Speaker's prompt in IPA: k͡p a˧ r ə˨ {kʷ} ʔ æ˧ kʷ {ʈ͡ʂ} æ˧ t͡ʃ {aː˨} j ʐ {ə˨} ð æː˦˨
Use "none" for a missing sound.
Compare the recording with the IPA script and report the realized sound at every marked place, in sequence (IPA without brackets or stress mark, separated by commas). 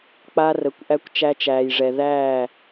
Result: kʷ, t͡ʃ, æː˨, ɛ˨